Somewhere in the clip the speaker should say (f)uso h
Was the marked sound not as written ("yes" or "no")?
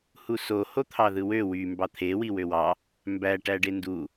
yes